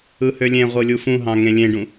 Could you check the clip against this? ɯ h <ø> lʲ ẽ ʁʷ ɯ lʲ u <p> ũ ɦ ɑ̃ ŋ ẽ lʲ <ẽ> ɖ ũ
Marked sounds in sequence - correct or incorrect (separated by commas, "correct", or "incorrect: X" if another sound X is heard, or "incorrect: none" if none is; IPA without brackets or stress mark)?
correct, incorrect: f, correct